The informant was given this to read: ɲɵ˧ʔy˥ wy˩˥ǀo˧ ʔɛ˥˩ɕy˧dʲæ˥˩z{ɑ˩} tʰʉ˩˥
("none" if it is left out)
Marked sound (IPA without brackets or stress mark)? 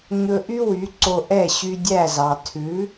ɑ˩